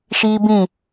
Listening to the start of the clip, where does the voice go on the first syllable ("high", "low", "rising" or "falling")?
high